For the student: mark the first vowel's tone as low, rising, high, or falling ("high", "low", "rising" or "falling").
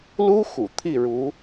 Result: high